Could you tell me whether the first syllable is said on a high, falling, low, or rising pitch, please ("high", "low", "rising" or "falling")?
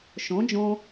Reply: rising